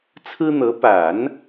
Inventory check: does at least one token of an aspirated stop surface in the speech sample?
yes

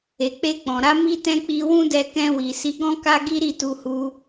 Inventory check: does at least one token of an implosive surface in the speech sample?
no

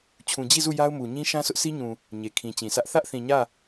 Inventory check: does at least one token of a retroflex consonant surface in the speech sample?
no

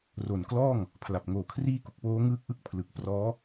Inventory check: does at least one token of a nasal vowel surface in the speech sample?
no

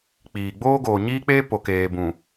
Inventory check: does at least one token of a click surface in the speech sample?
no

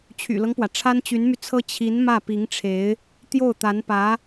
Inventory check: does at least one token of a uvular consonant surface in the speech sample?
no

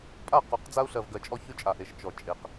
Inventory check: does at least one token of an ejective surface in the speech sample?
yes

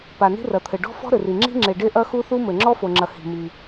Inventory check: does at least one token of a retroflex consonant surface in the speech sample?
yes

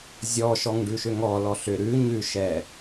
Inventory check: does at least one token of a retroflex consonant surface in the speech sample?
yes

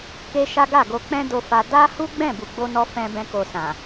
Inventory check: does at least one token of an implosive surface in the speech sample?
no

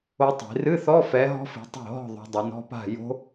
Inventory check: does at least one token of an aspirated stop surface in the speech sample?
no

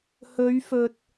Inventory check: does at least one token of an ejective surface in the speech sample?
no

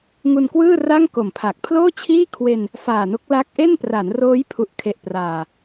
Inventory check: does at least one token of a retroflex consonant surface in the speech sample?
no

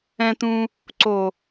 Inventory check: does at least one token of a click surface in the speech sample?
yes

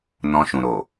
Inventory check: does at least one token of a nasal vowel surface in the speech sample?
yes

